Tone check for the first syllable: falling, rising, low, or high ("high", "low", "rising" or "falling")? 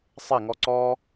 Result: falling